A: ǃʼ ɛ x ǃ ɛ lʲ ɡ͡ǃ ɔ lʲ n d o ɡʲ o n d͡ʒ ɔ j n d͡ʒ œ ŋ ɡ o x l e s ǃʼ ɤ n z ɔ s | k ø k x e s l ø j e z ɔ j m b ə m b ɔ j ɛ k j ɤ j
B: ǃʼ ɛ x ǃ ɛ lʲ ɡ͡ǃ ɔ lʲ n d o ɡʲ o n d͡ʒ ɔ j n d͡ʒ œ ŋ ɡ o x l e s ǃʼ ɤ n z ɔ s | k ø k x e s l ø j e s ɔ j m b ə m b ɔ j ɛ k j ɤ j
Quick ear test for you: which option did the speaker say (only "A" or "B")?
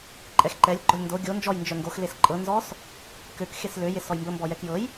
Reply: B